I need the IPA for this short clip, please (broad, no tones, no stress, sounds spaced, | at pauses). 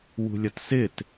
w ṳ lʲ ʌ t s ɪ t